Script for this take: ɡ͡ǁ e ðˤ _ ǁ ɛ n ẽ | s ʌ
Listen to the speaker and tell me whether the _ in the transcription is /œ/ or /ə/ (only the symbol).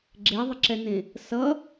ə